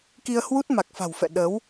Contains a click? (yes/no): no